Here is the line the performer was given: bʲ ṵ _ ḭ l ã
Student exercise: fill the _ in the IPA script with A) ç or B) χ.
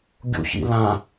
A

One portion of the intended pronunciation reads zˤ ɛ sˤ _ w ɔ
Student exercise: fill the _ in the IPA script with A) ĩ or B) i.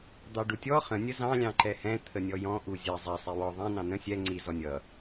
B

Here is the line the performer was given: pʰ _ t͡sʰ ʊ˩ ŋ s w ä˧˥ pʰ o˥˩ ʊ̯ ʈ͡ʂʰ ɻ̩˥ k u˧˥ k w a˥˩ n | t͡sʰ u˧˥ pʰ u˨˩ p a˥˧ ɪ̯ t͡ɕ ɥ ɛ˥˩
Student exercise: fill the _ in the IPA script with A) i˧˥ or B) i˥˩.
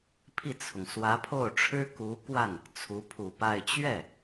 B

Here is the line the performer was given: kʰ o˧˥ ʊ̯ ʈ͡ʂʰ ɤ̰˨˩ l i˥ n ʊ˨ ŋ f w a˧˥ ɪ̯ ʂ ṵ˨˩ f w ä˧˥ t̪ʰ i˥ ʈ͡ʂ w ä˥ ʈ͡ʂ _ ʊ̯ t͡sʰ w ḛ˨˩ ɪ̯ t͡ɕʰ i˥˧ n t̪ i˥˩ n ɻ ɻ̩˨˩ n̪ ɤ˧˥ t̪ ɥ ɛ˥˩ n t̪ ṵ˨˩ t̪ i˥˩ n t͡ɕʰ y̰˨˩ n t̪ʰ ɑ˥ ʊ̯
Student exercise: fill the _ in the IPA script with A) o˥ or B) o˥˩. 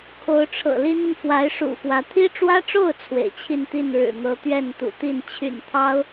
B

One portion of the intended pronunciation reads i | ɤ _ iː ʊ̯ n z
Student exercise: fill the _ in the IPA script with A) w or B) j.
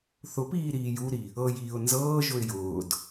B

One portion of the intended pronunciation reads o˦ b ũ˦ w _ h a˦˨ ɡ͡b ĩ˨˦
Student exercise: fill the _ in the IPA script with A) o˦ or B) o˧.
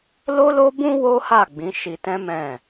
A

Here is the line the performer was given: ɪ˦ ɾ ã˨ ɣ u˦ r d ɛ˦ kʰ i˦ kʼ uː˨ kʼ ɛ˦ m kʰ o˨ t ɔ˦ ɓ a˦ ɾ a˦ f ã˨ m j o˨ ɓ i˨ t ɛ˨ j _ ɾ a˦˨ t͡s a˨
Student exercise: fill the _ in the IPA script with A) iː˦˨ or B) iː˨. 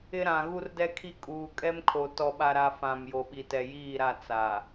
A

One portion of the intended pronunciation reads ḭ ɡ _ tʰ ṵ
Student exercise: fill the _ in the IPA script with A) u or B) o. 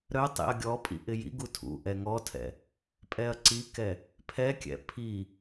A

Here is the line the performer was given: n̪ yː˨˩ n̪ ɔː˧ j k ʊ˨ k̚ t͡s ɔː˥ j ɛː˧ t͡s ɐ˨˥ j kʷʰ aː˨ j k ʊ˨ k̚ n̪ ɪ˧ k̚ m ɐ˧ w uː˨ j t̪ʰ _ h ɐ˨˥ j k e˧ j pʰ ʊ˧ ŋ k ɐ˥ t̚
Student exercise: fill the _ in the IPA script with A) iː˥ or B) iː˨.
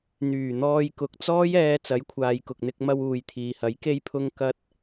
B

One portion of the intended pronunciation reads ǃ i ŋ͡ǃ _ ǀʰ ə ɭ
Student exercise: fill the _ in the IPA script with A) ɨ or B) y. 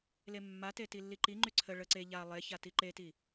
B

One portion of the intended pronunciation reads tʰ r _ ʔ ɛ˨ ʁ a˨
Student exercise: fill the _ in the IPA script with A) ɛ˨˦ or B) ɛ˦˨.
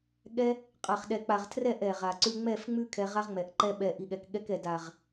B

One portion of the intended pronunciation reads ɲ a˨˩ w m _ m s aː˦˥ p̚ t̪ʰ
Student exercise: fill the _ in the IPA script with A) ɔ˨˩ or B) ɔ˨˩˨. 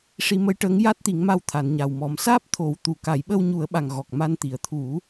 A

